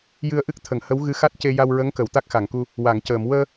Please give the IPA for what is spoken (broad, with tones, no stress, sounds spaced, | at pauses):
j ɨ˧ ə̯ ʔ ɨ˦˥ k̚ t̪ʰ ə˨˩˨ ŋ h ə˧˥ w ɣ ɨ˧ x a˦˥ t̚ c e˧ j a˧ w ɹ ə˧˥ ŋ k ə˨˩˨ w t̪ a˦˥ k̚ x a˨˩˨ ŋ k u˧ | w a˨˩˨ ŋ c əː˨˩˨ m w əː˧